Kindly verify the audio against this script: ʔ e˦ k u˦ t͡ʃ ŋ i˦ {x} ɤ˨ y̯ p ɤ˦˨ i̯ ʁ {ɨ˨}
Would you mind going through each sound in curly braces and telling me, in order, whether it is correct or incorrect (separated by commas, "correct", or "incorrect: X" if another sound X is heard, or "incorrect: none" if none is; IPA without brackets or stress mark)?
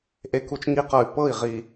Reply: incorrect: q, incorrect: i˨